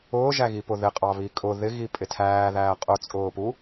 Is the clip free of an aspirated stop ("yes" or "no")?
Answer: no